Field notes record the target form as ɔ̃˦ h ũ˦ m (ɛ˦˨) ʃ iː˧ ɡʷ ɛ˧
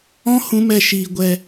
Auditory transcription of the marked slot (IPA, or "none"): ɛ˦˨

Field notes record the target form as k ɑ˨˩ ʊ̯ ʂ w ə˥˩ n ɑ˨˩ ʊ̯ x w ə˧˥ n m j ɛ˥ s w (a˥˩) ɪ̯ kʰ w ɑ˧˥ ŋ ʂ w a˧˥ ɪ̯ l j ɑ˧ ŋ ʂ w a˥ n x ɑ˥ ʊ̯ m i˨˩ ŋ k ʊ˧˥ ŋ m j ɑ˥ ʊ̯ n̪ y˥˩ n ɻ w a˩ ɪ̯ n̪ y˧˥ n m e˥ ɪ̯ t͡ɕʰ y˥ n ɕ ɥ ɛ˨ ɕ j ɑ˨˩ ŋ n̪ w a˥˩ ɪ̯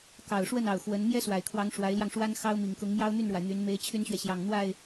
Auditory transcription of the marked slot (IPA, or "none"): a˨˩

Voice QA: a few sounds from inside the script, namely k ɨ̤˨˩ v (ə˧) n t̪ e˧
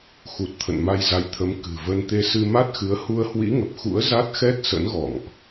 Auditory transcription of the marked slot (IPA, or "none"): ə˧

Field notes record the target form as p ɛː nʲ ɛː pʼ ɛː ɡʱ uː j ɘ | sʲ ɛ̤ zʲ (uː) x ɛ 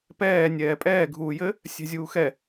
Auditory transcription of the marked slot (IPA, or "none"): uː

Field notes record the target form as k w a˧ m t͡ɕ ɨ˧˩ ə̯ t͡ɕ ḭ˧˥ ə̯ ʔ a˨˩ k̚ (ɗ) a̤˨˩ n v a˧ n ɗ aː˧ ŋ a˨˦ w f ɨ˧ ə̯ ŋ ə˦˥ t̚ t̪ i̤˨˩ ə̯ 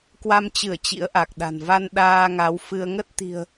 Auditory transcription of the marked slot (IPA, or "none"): ɗ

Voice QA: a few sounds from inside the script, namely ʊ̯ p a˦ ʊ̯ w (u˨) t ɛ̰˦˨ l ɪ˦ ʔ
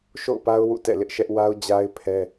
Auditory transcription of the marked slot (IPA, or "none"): ṵ˦˨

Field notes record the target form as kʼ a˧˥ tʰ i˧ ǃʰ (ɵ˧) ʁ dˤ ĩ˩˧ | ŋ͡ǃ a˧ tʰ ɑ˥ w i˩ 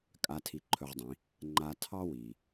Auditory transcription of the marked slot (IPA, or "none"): ɵ˧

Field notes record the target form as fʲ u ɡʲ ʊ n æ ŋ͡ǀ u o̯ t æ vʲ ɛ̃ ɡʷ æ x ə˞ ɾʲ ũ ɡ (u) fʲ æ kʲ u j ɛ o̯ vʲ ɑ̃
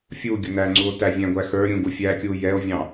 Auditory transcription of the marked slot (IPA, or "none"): u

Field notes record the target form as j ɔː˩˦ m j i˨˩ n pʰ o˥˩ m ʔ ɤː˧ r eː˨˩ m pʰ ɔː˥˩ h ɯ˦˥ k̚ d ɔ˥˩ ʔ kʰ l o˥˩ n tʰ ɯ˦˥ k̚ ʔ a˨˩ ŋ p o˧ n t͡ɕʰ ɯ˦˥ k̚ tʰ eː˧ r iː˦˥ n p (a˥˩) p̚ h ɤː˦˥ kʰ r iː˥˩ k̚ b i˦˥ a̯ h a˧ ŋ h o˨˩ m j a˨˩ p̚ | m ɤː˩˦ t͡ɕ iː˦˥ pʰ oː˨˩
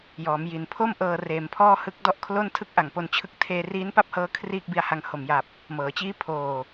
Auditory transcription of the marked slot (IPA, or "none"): a˥˩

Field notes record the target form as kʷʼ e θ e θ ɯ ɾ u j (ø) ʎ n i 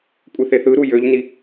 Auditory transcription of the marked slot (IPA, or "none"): ø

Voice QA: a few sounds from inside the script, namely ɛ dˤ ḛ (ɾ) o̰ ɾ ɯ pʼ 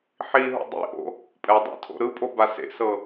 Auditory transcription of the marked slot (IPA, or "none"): tʰ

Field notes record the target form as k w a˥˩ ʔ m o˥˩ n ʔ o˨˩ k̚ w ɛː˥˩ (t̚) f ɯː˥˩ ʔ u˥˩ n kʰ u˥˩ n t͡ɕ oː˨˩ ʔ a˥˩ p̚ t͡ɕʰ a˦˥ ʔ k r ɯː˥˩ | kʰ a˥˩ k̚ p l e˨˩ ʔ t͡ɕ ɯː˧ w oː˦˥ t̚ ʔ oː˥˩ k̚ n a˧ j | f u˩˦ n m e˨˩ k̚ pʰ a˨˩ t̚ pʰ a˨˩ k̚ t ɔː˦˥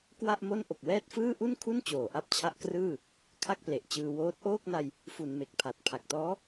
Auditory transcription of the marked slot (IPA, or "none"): t̚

